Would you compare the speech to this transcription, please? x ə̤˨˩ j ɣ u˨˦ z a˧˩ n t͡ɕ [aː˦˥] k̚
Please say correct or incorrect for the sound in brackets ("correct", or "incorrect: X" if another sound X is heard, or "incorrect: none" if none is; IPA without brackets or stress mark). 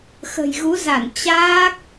correct